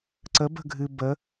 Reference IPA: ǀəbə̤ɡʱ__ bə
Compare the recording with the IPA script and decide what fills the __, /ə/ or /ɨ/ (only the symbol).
ɨ